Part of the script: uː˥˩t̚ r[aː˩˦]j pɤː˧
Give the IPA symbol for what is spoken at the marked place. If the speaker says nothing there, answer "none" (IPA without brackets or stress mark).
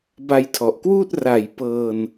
a˩˦